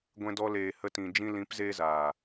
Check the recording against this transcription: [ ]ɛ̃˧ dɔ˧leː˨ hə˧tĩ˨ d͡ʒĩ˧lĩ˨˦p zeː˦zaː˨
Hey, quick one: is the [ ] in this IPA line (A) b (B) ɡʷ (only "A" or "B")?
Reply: B